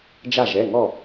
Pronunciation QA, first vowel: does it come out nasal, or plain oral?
oral